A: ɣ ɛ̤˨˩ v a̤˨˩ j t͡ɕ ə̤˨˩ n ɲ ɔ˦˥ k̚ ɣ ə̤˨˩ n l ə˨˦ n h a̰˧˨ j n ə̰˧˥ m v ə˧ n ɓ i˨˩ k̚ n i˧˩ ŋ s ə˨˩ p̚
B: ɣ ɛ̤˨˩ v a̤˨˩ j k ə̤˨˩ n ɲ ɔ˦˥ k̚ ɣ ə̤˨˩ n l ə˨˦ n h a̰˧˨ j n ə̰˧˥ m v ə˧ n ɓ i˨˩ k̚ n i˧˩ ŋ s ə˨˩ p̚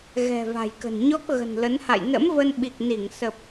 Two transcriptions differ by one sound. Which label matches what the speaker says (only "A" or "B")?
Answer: B